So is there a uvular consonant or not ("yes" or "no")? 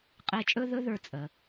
yes